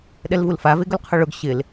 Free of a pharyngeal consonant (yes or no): yes